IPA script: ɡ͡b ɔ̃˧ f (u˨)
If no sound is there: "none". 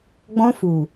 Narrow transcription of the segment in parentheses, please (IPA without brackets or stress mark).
u˨